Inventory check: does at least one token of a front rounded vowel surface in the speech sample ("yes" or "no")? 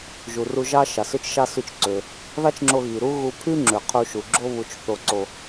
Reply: yes